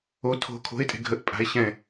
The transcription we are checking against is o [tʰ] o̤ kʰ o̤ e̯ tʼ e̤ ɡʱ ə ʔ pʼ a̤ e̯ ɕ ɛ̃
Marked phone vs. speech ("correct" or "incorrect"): correct